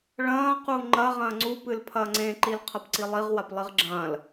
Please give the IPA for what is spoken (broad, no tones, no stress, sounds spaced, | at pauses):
ɭ ɐ̃ː q u ŋ͡ǃ ɐ ʁ ɐ̃ː ŋ͡ǀ u p ɨ l pʰ ɐː ŋ͡ǀ ẽ ǃ i l qʰ ɐ p ǀ i lˠ i ʁ w a p lˠ i ʁ ɡ͡ǁ ɐ̃ː l